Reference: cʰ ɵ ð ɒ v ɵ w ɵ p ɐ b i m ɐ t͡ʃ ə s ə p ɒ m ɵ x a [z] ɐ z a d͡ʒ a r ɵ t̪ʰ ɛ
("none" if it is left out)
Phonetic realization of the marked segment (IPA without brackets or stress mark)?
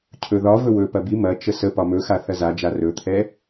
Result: θ